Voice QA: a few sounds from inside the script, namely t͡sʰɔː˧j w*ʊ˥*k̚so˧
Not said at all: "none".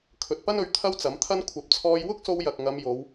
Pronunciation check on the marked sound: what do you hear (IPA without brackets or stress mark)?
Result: ʊ˥